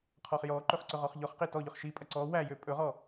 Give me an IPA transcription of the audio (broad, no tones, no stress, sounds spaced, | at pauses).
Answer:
qʰ ɔ χ j ɔ ǃ ɵ χ ǀ ɵ ʁ ɔ χ ʎ ɔ χ q i t ɔ ʎ ɵ χ ʃ i pʼ ɐ ǀ ɔ w æ j ø pʼ ɵ ʁ ɔ